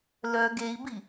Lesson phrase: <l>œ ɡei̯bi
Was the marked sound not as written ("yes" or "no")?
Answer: no